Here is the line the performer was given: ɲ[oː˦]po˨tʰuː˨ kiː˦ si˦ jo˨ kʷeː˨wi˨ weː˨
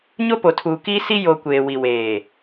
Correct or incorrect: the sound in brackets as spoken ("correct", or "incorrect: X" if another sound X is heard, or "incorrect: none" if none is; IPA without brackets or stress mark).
incorrect: o˦